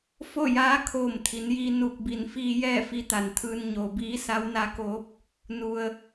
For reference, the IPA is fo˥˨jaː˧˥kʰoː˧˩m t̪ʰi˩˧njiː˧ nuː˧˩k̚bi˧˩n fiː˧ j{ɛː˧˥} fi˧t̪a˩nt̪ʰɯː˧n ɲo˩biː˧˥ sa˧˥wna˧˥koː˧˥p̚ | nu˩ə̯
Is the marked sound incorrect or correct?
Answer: incorrect: ɛː˥˨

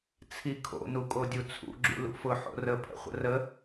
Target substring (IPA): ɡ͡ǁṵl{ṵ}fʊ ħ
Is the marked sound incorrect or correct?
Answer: correct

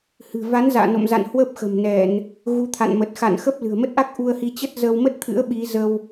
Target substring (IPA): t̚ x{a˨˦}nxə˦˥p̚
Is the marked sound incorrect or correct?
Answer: incorrect: a̰˧˨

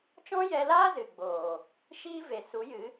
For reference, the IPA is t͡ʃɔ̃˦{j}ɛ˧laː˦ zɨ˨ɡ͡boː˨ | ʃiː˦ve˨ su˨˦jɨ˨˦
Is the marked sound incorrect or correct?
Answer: correct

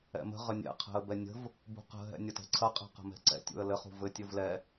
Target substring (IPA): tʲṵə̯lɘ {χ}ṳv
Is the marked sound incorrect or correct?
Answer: correct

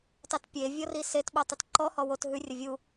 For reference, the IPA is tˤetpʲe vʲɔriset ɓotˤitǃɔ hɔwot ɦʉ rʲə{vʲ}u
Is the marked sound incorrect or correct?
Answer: correct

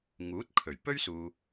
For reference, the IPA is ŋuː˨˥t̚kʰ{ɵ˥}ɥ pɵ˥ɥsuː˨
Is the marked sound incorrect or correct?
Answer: incorrect: ɵ˨˩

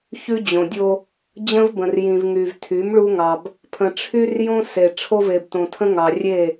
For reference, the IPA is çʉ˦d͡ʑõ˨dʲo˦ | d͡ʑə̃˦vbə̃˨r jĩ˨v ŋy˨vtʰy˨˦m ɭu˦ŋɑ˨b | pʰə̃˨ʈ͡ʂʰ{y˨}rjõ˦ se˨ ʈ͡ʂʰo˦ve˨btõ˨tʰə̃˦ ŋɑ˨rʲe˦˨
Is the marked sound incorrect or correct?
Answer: incorrect: y˦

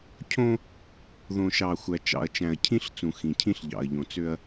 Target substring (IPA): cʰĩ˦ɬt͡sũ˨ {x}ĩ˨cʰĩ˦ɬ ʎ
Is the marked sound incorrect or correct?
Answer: correct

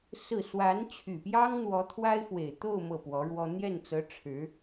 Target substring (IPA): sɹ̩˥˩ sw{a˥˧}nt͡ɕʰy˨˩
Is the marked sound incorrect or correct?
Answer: incorrect: a˧˥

